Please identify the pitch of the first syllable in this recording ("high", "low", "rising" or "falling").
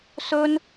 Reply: high